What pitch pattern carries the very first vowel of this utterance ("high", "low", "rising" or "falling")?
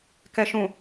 low